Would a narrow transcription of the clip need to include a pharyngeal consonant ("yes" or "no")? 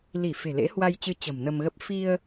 no